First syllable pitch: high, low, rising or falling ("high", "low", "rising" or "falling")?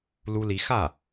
high